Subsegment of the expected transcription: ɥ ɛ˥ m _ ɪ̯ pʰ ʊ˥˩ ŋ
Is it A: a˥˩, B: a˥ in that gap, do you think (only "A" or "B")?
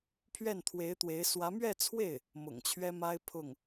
B